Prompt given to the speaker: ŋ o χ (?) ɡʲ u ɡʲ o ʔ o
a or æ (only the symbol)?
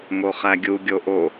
æ